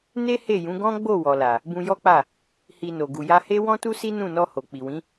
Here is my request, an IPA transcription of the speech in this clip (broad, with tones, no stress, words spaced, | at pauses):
ne˦he˦˨jũ˨˦ ɡɔ̃˦ɡ͡bo˦˨ wɔ˨la˨ | bũ˧jɔ˦k͡pa˦˨ | hi˧no˨ ɡu˨ja˧he˦ wɔ̃˦tu˦si˦ nũ˦˨nɔ˧ ho˨ k͡pi˨wĩ˨˦